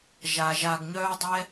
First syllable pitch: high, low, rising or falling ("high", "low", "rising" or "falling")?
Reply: low